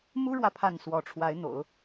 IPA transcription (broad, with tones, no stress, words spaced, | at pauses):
mu˥ɻwä˨ pʰa˥˩nswɔ˧˥ ʈ͡ʂʰwa˧˥ɪ̯n̪o̰˨˩˦ʊ̯